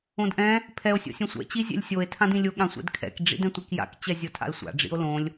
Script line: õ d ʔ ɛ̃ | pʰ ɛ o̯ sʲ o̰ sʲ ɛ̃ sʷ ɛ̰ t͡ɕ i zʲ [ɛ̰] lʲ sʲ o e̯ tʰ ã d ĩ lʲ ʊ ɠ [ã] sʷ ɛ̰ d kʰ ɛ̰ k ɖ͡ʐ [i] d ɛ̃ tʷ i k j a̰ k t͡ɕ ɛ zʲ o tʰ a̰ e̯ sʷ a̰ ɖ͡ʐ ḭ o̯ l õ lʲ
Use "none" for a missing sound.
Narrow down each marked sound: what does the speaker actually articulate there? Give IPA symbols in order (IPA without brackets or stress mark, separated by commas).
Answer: ɛ̰, ã, ḭ